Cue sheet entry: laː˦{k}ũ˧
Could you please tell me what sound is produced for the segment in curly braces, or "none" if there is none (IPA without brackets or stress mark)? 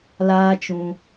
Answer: t͡ʃ